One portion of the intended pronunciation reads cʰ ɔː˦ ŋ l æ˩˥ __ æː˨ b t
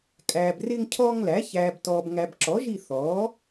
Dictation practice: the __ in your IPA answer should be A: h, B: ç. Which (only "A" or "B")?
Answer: B